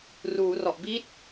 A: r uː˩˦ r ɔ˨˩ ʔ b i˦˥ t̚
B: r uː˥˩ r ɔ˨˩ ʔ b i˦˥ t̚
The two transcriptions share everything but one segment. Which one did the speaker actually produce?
A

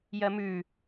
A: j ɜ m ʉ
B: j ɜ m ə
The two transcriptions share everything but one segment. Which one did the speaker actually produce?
A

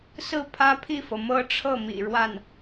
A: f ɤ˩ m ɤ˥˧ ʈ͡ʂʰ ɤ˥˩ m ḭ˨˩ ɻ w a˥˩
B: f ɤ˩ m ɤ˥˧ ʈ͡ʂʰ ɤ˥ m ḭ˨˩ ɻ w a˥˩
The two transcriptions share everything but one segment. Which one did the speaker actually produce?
A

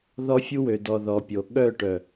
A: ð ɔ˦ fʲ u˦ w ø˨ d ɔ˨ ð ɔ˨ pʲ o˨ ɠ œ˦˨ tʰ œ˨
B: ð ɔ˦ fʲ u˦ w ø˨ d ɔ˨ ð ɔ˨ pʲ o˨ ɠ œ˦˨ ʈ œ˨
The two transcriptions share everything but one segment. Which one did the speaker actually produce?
B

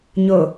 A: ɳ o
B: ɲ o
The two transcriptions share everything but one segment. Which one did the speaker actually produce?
B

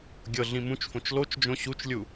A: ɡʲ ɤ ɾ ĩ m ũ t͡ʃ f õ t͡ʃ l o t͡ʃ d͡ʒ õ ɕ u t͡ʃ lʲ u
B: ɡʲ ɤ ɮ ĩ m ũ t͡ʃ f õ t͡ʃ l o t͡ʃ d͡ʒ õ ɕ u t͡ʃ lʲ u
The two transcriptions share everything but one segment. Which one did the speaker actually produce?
B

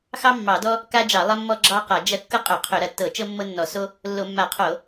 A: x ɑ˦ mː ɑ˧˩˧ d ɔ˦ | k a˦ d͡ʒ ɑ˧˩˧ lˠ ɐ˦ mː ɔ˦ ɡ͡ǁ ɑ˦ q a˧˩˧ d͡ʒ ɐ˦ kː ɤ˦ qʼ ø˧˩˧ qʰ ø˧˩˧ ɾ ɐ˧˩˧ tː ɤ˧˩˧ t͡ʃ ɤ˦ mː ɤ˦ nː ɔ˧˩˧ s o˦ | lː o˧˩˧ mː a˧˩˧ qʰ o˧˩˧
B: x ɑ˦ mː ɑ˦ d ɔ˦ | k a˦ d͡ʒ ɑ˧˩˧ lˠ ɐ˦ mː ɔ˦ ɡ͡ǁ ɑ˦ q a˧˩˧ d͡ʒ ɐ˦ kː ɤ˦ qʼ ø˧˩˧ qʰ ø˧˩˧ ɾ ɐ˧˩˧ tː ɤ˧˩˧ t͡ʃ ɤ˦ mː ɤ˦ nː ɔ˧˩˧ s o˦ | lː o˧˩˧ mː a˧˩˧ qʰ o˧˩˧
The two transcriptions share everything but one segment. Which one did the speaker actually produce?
A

